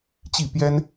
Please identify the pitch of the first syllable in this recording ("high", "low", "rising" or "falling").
falling